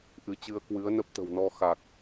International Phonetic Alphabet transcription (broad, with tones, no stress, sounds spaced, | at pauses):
ʔ ɨ˨˦ t͡ɕ ɨ˧ ə̯ k w ɨ˨˦ ə̯ n ə˦˥ p̚ t̪ ə̤˨˩ w n ɔ˧ x a˨˩ k̚